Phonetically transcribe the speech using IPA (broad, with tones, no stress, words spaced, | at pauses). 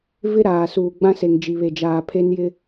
vɪ˦ ɾaː˨suː˨ ɡ͡bã˦ se˨ŋd͡ʒi˨βe˨d͡ʒaː˨ pʰe˦njɪ˦